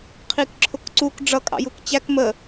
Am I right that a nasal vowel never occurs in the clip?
yes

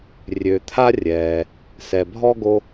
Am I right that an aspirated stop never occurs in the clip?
no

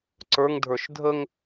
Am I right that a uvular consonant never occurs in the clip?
yes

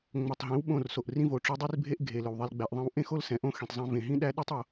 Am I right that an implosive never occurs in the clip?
no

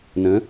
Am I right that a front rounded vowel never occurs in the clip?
yes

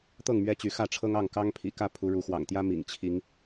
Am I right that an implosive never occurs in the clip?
yes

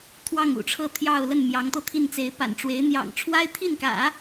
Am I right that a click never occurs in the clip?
yes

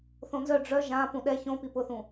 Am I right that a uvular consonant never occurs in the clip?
yes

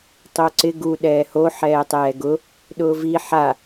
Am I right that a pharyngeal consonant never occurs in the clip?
no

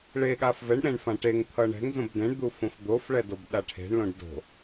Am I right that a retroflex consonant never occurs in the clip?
no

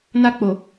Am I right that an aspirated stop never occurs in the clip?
yes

